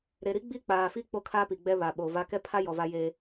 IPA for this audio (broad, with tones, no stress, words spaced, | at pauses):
ɾe˨ɾi˦ ɡ͡bi˦k͡paː˨ fi˦ k͡po˦kʰaː˦pi˨ ɡ͡bɛ˦βa˨ɓoː˨va˦ kɛ˦pʰa˦jɔ˨ va˦je˦